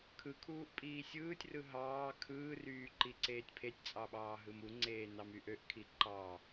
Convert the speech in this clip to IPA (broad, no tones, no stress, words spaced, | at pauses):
kʰɯkʰuːʔ pʼiːsʲɯːtʲrɯ ɦɑː kʰɯːryː ǃiǀeːtʲpʰetʲt͡sʼɑ ɓɑːɦɯmuŋ͡ǀeː nɑmyʔøʔkʰi ǃɑ